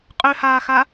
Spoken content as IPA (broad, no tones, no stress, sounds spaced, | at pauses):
qʼ ø h aː x a